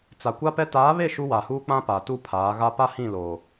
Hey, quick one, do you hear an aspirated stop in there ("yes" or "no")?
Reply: yes